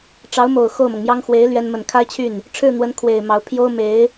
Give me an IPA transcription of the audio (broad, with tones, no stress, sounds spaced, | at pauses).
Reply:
ʈ͡ʂ ɑ˧˥ ʊ̯ m o˨˩ ʊ̯ x o˥˩ ʊ̯ m ɤ˩ ŋ m j ɑ˥ ŋ x w e˧˥ ɪ̯ l ɥ ɛ˥ n m ə˥˩ n kʰ a˥ ɪ̯ t͡ɕʰ y˥˩ n | ʈ͡ʂʰ ɻ̩˥˩ n̪ w ə˧˥ n kʰ w e˨˩ ɪ̯ m ɑ˧˥ ʊ̯ pʰ j o˥ ʊ̯ m e˧˥ ɪ̯